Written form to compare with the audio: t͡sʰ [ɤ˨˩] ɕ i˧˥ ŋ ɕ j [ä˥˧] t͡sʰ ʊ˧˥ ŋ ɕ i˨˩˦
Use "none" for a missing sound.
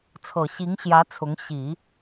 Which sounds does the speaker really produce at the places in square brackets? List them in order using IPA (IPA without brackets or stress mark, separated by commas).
ɤ˨˩, ä˧˥